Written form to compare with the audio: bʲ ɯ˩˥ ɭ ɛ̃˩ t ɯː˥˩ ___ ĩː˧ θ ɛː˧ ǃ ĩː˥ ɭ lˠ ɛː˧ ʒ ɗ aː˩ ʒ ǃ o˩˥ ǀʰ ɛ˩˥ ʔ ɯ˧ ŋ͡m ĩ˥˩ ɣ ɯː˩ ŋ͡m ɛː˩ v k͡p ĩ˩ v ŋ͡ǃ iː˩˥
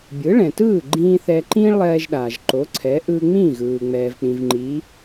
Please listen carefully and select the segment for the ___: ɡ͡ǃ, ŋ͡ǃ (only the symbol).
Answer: ɡ͡ǃ